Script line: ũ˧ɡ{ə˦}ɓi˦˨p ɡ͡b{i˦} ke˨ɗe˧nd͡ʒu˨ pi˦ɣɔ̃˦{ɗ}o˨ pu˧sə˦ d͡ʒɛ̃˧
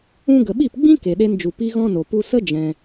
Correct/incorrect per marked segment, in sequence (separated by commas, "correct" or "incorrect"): incorrect, incorrect, incorrect